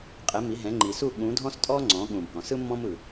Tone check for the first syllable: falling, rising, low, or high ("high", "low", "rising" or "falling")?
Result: rising